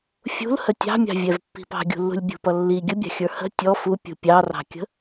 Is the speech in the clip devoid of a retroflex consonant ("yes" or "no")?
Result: yes